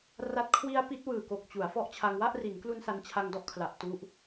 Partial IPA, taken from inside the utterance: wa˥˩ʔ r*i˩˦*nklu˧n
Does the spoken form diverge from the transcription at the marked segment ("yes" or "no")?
no